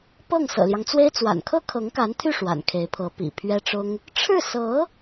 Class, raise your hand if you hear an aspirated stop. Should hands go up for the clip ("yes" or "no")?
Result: yes